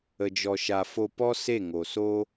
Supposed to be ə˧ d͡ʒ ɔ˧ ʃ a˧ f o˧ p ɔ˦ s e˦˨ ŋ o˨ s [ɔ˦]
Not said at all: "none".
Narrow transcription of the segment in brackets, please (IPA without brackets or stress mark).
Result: o˦